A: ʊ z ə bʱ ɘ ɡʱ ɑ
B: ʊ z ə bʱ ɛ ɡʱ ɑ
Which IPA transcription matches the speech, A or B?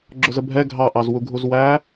B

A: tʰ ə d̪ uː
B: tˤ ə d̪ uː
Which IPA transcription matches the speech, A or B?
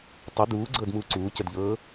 B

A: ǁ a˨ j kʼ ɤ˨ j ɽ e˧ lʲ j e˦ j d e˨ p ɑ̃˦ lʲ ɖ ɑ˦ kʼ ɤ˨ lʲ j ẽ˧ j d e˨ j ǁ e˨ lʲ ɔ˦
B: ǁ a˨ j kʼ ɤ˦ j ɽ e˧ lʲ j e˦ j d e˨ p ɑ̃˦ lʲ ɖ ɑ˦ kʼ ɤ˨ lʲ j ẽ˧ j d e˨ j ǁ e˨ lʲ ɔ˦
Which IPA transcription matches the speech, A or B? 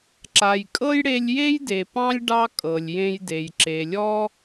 B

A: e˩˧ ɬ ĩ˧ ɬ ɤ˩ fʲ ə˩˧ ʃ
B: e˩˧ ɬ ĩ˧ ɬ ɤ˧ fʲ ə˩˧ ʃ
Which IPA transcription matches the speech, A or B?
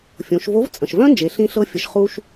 B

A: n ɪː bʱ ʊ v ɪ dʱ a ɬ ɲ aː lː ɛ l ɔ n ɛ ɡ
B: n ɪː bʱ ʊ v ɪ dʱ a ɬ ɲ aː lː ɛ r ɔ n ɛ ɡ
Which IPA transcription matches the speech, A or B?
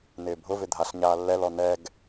A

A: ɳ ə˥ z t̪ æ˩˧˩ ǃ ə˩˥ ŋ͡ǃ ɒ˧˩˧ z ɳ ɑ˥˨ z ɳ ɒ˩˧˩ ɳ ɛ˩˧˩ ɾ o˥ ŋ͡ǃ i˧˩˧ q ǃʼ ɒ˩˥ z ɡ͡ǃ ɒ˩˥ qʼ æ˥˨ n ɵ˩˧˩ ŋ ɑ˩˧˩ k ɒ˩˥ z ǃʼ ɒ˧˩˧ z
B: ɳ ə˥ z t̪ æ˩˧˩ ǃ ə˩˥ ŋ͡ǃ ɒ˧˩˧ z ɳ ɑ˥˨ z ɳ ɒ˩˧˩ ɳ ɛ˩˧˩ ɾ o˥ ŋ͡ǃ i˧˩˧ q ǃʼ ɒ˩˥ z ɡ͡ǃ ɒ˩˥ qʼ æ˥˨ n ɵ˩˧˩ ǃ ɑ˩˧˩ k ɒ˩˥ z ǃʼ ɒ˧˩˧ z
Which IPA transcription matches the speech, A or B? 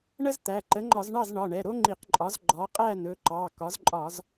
B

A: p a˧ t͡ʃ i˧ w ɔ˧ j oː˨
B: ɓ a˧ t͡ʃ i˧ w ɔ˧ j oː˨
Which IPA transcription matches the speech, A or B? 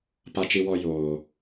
A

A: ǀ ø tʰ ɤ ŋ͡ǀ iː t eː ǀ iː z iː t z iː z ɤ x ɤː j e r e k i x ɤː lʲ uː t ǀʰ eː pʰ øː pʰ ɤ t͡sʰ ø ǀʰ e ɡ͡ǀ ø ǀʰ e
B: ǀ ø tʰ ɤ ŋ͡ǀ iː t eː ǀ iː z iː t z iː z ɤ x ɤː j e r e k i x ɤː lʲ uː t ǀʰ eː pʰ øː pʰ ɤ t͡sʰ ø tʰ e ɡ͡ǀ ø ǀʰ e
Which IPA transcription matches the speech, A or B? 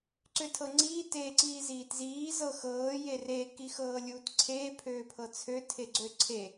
B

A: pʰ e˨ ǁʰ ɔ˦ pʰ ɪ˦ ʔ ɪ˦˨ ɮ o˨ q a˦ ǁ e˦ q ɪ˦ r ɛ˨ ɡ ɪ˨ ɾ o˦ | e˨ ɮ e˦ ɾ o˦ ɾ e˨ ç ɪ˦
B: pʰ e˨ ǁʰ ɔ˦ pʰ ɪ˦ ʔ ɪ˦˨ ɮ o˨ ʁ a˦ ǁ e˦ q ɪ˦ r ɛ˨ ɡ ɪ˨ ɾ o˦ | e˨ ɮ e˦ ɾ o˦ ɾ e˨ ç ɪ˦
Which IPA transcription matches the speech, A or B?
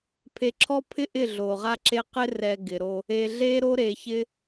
B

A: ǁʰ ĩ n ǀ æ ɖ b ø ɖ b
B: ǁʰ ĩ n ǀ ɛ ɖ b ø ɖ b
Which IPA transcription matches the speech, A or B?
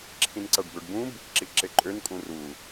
A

